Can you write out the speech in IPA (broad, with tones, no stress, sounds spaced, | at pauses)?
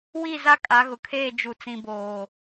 w i˦˨ z a˦ kʼ a˨˦ ɣ ʊ˨ kʰ eː˦˨ d͡ʒ u˨ t͡s ĩ˨ b oː˨